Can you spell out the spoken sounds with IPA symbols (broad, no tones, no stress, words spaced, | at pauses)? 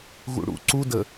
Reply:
ɣṵɽṵ ǀudə